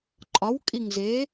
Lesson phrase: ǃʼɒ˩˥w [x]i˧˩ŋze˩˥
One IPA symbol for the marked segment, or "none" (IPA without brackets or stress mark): kʼ